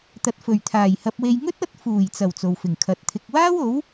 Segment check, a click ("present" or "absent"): absent